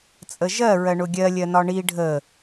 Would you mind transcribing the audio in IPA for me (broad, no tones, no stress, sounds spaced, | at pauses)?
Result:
t͡sʼ ə ʒ ɜ ɹ ɜ ɳ ʊ ɡʲ ɜ lʲ ɜ n ɒ ɳ i ɖʱ ə